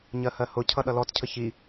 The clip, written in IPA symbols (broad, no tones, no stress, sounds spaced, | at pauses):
ɲ ɜ h ɜ h ʊ cʰ ʌ ɗ ʌ l ɔ t cʰ ə ç i